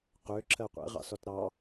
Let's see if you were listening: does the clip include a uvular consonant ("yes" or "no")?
yes